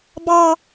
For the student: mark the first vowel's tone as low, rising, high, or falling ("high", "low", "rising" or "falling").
low